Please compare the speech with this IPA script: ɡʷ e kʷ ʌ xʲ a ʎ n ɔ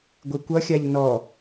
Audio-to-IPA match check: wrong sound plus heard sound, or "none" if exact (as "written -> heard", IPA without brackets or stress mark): none